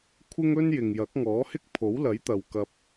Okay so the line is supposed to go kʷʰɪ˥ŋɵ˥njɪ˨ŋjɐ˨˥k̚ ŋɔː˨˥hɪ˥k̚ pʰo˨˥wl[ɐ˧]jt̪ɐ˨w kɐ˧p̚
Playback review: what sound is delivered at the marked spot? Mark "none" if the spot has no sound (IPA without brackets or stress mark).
ɐ˨˥